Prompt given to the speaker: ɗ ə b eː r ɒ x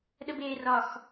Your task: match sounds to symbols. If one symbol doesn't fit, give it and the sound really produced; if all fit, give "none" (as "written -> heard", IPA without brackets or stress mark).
none